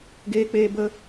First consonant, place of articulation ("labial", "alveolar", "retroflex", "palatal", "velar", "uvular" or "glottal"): velar